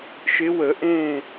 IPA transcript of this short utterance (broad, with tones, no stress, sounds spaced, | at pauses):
ʃ ɪ˨˦ w ə˨˩˦ ʔ ẽ˧˩